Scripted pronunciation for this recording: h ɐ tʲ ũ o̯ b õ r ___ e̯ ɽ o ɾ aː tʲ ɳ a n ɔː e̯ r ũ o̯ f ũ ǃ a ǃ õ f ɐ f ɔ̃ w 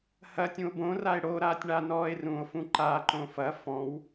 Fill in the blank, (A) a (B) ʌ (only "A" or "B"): A